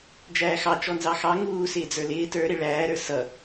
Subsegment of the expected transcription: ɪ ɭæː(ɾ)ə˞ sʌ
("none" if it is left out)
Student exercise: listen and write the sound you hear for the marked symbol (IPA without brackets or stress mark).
ɾ